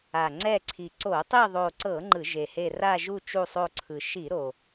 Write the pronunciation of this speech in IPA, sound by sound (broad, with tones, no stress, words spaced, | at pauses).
a˨˩ŋ͡ǀɛ˦˨ǀʰi˨˩ ǀo˧˩˧tˤi˦˨ðˤo˨˩ǀɤ˧˩˧ ŋ͡ǃɯ˧˩˧ʒe˨˩he˦˨ ra˦˨ʒu˦˨ t͡ʃu˦˨sˤo˦˨ǀʰɯ˨˩ ʃi˧˩˧ ɾo˨˩